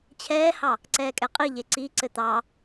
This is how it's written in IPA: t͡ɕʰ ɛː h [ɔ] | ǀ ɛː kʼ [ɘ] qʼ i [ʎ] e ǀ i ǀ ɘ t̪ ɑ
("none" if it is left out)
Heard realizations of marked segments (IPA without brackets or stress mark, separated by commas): ɑ, ɛ, ʎ